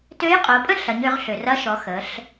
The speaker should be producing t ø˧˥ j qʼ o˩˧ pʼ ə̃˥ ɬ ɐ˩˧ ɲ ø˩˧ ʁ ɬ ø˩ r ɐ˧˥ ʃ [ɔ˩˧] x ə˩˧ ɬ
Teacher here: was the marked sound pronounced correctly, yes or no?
yes